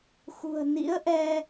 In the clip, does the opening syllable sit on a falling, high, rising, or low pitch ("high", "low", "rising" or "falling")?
low